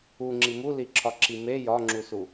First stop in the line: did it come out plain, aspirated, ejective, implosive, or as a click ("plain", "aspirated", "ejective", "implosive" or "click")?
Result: click